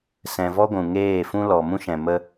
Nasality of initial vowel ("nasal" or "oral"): nasal